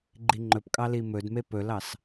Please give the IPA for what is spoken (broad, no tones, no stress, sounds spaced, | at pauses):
ɡ͡ǃ i ŋ͡ǃ ɵ p kʼ ɑ l i m ɵ d m e p ɵ l ɑ s